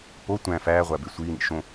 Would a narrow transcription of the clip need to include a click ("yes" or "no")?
no